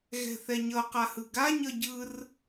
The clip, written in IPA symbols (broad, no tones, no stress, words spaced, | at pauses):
ɣɛ̤θɛɲʌ qahɯɡa ɲʌɟɯr